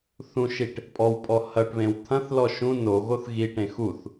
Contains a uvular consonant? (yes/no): no